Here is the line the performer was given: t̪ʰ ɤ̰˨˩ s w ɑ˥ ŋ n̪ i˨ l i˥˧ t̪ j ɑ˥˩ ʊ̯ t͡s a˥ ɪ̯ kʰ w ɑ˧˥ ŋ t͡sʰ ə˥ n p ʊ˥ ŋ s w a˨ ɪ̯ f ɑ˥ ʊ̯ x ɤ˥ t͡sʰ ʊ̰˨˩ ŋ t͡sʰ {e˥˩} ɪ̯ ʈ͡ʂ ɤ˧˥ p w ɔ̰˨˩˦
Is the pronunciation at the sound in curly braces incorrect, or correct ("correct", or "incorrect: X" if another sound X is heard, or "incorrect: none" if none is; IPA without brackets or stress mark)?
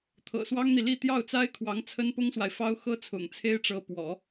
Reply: incorrect: e˥